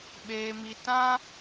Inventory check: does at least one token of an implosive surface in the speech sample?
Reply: yes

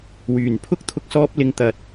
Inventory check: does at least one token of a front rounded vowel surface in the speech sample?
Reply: yes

